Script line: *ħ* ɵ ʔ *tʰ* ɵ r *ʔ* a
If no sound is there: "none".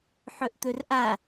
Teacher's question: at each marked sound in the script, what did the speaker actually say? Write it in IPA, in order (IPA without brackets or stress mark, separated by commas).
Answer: ħ, t̪, ʔ